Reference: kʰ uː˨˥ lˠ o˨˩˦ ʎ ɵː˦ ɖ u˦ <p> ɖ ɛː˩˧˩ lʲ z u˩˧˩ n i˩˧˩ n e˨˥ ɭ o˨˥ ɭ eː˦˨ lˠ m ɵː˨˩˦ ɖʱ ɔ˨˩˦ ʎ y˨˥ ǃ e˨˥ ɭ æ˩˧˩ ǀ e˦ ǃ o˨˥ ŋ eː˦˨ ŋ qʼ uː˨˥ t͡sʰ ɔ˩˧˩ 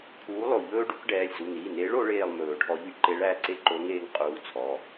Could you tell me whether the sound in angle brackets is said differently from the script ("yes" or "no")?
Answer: yes